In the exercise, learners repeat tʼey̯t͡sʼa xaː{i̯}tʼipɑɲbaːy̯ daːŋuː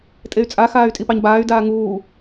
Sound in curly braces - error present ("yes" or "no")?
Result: yes